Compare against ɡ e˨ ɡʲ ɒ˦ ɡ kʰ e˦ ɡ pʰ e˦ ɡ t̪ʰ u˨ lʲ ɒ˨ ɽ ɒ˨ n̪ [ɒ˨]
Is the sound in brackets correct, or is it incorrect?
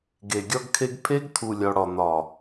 correct